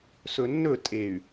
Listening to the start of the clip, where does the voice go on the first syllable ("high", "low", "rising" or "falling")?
low